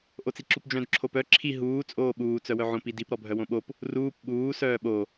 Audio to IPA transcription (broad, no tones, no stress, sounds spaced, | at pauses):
ʔ o t͡s i ǁ u p d͡ʒ œ̃ d ǁʰ o p œ ǁʰ i ɦ uː t͡sʼ oː ɓ uː t͡s œ w œ ʕ õ p i d i p ɾ ɔ bʱ œ w õ ɓ o p | r uː p ɓ uː s œː ɓ o